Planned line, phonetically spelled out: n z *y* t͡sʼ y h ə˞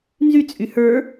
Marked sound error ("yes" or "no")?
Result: no